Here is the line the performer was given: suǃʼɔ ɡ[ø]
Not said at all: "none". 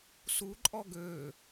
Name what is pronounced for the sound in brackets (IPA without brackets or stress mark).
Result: ø